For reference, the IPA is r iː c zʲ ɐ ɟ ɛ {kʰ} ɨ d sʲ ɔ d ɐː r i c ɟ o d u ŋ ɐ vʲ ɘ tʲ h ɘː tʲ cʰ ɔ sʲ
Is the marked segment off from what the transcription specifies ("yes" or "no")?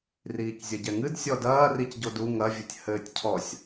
yes